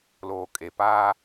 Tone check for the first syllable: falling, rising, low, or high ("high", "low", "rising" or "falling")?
low